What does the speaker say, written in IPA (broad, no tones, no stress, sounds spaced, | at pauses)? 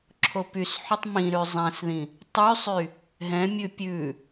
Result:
ǁʰ o p y s ħ y tˤ m ĩ ɾ ʉ zˤ ɛ̃ s ð ĩ | tˤ y sˤ y | ɦ ɛ̃ mʲ ʉ pʲ ʉ